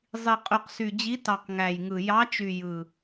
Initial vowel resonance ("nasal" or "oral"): oral